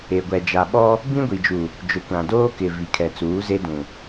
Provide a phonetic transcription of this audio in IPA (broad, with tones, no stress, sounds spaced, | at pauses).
e˨ ɡʷ ɛ˨ d͡ʒ a˨ ɓ ɔ˦ | b ĩ˦ ɡʷ i˨ d͡ʒ u˨ | d͡ʒ ʊ˨ kʷ ã˨ d oː˦ k ɪ˨ v i˨ kʰ ɛ˨ t͡s uː˨˦ z e˦ d ũ˨